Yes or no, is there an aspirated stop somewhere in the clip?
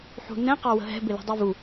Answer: no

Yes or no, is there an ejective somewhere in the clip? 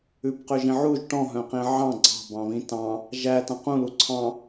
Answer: no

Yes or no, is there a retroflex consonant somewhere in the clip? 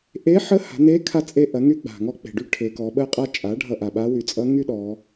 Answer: yes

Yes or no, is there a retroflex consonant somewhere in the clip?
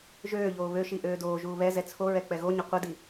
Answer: no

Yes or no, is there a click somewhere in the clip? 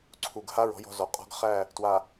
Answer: yes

